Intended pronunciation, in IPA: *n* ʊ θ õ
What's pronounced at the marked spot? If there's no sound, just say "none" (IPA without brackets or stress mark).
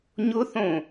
ɲ